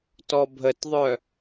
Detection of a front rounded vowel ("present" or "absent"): present